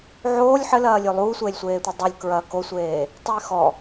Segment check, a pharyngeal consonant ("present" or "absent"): present